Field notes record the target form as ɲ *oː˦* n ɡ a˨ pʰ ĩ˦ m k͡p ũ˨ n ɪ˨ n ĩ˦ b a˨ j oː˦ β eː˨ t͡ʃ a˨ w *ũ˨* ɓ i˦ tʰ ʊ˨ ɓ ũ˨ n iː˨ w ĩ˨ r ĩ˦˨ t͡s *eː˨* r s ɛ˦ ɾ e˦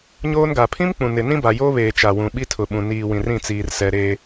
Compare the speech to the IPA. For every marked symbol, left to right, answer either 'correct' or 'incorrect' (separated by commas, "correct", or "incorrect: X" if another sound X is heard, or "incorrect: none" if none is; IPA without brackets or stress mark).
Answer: correct, correct, incorrect: iː˨